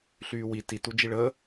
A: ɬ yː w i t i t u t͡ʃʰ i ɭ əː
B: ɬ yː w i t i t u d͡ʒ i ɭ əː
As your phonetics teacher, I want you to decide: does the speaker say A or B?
B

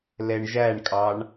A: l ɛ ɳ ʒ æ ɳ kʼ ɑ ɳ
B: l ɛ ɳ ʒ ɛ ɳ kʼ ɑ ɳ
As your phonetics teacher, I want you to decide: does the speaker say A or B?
A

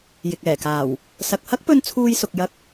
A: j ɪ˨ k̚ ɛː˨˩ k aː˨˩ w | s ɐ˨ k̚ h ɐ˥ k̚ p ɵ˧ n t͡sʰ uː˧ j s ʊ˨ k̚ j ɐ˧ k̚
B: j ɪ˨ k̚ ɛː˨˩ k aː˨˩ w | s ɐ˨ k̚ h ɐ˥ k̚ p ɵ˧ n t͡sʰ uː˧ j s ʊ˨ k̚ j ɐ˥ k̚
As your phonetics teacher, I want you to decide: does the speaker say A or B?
A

